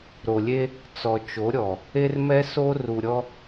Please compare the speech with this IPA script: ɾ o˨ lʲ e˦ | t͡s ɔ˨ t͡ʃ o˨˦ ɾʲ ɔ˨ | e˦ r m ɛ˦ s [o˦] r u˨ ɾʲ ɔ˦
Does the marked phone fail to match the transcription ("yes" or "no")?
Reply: no